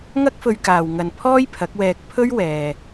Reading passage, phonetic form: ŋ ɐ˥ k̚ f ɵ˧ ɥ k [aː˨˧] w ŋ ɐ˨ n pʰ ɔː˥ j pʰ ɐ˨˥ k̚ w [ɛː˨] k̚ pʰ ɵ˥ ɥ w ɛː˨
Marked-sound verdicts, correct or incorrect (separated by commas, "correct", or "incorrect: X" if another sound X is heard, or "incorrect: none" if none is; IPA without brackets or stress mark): incorrect: aː˨, incorrect: ɛː˧